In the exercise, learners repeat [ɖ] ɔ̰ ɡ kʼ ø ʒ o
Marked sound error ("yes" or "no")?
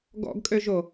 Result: yes